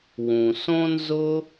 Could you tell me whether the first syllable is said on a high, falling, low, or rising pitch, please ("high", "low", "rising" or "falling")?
low